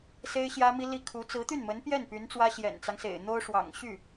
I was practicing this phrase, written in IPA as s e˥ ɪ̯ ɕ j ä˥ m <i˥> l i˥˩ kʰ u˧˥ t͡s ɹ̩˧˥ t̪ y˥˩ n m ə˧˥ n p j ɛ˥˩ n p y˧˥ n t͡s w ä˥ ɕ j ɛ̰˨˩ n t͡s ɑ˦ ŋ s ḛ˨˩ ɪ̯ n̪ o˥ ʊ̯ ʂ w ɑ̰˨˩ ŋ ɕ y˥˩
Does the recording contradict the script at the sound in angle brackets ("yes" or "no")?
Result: no